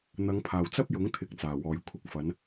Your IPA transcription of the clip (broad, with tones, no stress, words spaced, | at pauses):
n̪ɐ˨˧ŋpʰaː˨˩wt͡sɐ˥p̚ jʊ˨˥ŋt̪ʰɪ˨˥k̚t͡saː˨˩ wɔː˨˩j kʷʰɪ˧k̚fɐ˨˧n